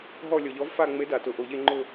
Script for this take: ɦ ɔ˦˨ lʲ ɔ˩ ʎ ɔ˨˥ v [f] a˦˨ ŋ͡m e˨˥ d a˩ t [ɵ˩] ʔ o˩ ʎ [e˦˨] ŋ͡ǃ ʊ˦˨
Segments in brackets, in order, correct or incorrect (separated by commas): correct, incorrect, correct